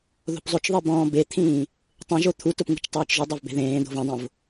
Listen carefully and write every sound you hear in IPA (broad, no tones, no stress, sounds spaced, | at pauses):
ð o̤ p zˤ o t͡ʃ ðˤ i b ɔ̃ː b e t̪ʰ ĩː | tˤ ẽ ʒ o t̪ʰ u t ʊ p ŋ ṳ t͡ʃ tˤ eː t͡ʃ ʒ ʊ dˤ a v b e̤ ð ẽː d̪ o̤ v ɛ̃ dˤ õ v